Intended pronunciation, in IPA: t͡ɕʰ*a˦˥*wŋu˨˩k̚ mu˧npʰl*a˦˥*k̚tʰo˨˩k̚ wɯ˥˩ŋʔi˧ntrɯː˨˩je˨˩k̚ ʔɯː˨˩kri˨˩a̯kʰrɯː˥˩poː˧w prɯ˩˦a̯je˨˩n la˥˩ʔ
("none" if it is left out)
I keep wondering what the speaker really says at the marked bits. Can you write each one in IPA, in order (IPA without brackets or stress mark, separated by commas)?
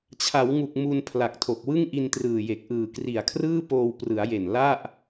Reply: a˩˦, a˨˩